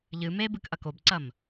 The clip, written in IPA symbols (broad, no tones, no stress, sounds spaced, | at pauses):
ʎ ɨ m e b ɨ k ʔ ɐ k o b ǀ ɐ m